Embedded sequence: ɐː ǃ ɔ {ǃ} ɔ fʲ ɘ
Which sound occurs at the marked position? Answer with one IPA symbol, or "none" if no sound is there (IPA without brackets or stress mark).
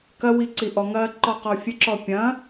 q